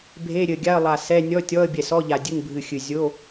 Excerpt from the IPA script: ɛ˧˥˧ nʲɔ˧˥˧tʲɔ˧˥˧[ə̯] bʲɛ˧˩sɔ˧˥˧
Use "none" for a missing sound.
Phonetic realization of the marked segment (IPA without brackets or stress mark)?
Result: ə̯